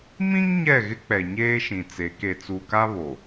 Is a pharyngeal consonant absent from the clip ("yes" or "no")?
yes